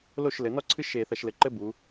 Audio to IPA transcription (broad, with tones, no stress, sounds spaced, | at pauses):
l o˥˩ ʃ l ɘ˩˧ n ɔ˥ ǀʰ ɨ˥ ʃ e˧˩˧ θ ɐ˧˩˧ ʃ l ɘ˩˧ ǃ ɘ˥ b u˩˧